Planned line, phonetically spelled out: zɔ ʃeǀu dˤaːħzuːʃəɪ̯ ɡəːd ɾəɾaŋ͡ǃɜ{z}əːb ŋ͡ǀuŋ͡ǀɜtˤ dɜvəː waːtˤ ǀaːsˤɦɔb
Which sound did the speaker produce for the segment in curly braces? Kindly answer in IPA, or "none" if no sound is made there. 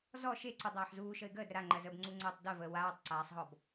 z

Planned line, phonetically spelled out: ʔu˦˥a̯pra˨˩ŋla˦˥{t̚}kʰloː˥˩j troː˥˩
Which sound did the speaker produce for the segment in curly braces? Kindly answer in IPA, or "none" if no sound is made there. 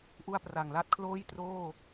t̚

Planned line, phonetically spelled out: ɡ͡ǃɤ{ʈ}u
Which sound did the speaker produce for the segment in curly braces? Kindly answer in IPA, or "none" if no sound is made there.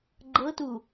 t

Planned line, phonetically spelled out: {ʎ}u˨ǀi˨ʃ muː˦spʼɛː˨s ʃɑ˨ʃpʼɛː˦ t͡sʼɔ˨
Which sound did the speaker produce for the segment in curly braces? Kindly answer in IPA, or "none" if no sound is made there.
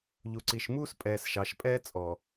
ʎ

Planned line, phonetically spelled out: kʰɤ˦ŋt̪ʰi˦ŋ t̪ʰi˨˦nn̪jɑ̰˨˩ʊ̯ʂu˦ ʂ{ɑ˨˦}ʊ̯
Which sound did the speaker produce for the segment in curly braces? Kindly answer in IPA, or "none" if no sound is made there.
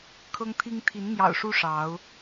ɑ˨˦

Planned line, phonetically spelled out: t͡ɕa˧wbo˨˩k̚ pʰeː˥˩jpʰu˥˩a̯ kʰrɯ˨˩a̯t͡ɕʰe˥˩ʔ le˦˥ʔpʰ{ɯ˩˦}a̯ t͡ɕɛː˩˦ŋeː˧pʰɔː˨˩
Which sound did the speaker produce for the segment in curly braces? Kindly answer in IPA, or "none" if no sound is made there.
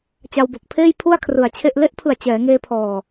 ɯ˨˩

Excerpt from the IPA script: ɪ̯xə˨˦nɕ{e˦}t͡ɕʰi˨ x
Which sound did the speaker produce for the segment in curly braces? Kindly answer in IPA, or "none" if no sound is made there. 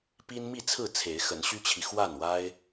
y˦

